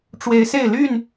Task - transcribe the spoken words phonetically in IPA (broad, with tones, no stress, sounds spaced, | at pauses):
ʈ͡ʂ w e˨˦ ɪ̯ s e˥˨ ɪ̯ l y˥˨ n